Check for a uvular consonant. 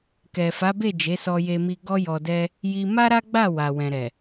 absent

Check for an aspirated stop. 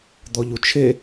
present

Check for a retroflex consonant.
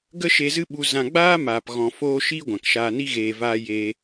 absent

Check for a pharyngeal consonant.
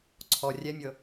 absent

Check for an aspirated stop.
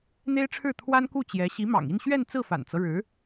present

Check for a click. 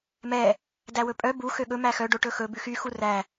absent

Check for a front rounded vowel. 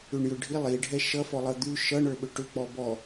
present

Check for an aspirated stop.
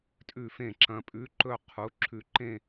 present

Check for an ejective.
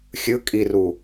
present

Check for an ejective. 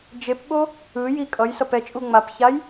present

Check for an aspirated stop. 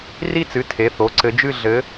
present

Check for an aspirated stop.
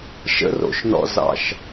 absent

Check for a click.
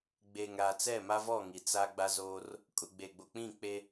absent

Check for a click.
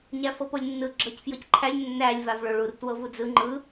present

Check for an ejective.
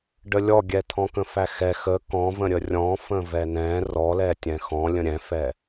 absent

